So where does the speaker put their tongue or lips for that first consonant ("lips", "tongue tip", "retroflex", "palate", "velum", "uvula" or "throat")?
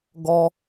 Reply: velum